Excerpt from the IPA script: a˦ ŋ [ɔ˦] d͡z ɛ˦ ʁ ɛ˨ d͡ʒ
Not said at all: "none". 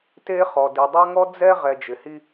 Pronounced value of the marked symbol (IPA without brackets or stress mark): ɔ˦